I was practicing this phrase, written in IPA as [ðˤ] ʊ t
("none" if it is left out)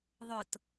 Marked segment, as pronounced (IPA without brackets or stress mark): ðˤ